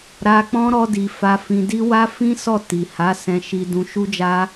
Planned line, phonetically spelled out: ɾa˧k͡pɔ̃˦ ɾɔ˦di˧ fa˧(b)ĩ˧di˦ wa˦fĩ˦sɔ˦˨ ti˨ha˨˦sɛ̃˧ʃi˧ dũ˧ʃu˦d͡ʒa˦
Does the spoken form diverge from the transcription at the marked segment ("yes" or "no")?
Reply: yes